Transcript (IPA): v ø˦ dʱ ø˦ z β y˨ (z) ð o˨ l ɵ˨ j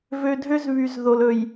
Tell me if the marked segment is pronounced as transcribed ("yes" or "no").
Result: yes